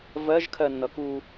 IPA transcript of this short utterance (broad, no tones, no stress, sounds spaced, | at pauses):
v ɜ ʒ kʰ ɜ nː ʌ k u